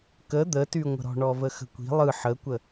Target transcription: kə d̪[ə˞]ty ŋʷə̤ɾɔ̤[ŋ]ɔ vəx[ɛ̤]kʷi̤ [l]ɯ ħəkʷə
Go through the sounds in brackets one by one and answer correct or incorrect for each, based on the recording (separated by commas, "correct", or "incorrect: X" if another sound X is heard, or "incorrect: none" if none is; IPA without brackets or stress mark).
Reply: incorrect: ə, incorrect: ɳ, incorrect: ə̤, incorrect: lˠ